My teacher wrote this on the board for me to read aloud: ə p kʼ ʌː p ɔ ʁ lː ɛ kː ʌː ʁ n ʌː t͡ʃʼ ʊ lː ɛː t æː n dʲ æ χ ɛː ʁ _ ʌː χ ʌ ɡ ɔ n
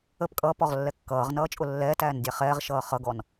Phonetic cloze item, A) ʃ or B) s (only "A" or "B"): A